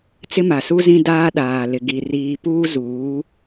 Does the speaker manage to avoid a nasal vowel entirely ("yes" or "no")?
no